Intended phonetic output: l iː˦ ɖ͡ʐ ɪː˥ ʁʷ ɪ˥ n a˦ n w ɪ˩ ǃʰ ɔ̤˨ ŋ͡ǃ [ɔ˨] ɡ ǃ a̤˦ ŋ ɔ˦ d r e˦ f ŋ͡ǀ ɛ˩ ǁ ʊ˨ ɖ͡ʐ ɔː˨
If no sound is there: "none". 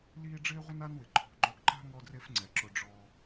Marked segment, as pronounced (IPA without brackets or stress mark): ɔ˨